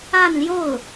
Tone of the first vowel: falling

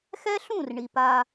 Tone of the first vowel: high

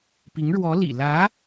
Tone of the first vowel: rising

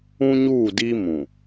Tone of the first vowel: high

